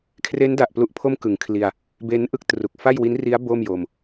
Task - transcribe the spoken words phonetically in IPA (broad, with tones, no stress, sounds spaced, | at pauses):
kʰ r e˦˥ n d a˨˩ ʔ p l u˦˥ ʔ pʰ o˥˩ m k ɯ˨˩ ŋ kʰ l i˧ a̯ | b e˦˥ n ʔ ɯ˦˥ k̚ t r u˨˩ k̚ f a˥˩ j w i˦˥ n r i˦˥ a̯ b o˥˩ m j o˧ m